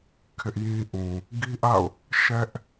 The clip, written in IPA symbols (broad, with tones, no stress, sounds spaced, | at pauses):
kʰ ɪ˦ ʔ j ĩ˦ ʔ ũ˨ | ɡ i˦ ʔ a̰˦˨ ʊ̯ | ʃ ɛ˦ ʔ